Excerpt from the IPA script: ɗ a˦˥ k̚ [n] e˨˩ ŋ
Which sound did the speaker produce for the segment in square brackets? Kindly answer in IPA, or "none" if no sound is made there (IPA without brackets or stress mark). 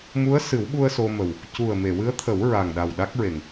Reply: ɹ